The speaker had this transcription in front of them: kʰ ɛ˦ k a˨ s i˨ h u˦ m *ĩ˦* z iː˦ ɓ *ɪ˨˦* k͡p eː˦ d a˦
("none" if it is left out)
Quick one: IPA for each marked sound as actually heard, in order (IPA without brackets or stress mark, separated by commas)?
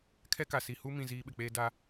ĩ˨, ɪ˨